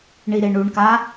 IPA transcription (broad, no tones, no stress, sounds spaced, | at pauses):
ɳ i ɾ e ɳ u ɳ k a